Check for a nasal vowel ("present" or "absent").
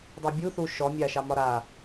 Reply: absent